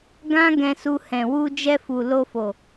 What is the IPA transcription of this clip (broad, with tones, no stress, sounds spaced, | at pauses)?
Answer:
ɡ ã˦ ɡ ɛ̃˧ s u˧ h ɛ̃˨ w u˧ d͡ʒ ɛ˧ f u˨ l o˧ f o˨